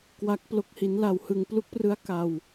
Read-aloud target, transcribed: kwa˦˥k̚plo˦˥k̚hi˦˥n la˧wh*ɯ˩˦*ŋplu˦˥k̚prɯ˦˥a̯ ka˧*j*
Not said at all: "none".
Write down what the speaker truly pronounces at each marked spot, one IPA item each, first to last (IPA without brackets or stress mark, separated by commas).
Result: ɯ˧, w